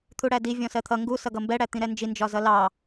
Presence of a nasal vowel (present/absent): present